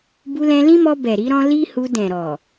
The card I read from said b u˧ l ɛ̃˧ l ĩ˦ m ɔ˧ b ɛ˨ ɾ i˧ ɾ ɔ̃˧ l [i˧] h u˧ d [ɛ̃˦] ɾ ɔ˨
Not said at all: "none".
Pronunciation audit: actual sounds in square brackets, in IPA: i˦, ɛ̃˨

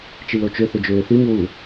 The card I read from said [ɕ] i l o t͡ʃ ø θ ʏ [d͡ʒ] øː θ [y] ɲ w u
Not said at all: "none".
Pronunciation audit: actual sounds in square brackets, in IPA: t͡ʃ, d͡ʒ, y

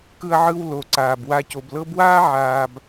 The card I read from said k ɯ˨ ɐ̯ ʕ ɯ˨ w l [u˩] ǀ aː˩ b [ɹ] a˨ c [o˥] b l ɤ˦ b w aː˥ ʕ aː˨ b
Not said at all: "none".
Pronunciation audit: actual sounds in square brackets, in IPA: o˩, w, o˩

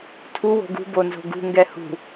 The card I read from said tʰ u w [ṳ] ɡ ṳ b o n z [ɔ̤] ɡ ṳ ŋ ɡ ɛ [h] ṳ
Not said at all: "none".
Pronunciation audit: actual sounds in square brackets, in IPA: o̤, o̤, h

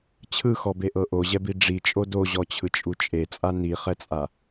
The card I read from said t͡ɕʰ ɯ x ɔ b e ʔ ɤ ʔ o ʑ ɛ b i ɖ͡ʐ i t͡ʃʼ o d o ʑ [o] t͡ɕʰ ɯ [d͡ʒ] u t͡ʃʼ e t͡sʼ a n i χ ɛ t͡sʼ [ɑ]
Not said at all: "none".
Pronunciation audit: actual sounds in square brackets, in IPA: ɔ, t͡ʃʼ, a

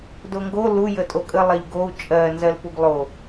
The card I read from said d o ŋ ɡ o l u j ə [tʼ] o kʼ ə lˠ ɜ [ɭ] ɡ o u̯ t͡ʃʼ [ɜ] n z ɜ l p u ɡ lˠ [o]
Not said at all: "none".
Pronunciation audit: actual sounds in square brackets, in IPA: tʼ, ʎ, ɜ, o

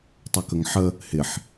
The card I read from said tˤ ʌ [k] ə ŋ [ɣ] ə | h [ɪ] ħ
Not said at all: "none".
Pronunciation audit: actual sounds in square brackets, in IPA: k, ħ, ɪ

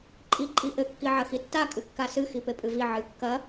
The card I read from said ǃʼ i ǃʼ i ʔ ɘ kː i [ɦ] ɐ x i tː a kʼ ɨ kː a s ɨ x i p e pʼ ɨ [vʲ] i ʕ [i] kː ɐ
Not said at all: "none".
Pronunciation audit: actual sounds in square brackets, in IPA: ʕ, v, ɨ

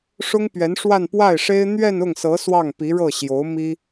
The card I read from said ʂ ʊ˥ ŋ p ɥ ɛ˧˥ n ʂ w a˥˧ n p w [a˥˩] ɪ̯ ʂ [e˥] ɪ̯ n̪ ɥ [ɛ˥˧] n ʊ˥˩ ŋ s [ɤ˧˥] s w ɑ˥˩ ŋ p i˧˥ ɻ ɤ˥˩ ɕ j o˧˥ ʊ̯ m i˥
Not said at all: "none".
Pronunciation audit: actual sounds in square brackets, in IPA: a˥˩, e˥, ɛ˥˧, ɤ˧˥

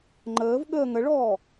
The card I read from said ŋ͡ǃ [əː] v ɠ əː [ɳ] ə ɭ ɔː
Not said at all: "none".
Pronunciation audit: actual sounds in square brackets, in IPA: əː, ŋ

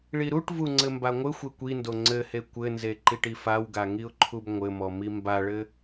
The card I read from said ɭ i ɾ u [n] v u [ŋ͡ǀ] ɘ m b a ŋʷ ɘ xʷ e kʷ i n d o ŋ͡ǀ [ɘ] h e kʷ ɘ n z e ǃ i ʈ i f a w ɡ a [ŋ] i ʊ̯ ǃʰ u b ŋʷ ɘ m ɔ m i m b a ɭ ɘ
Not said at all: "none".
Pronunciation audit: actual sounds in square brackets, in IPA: ʈ, ŋ͡ǀ, ɘ, ŋ

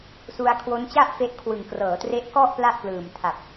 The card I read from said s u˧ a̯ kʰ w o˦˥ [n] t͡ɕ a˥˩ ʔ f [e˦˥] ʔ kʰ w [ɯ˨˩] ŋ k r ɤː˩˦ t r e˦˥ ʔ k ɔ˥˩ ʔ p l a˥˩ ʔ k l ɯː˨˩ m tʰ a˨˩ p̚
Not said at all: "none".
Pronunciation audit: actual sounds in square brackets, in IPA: n, e˦˥, ɯ˨˩

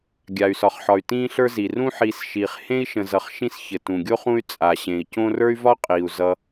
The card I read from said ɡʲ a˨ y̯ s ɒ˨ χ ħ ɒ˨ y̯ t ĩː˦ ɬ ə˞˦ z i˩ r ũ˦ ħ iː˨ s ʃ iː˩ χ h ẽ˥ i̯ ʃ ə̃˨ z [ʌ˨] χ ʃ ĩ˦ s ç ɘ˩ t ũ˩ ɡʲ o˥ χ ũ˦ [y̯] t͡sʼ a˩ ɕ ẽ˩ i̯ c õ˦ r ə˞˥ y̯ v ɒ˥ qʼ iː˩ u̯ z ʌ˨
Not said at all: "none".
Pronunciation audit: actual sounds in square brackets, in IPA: ʌ˨, y̯

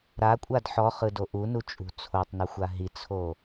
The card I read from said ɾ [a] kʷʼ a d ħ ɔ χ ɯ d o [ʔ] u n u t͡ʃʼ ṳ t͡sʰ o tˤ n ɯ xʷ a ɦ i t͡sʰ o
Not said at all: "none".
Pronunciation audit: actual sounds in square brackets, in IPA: a, ʔ

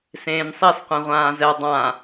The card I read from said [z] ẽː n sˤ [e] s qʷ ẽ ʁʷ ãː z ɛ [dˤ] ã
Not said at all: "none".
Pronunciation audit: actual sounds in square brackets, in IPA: s, i, dˤ

